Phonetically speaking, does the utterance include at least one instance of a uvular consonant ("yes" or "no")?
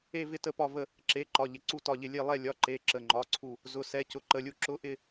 no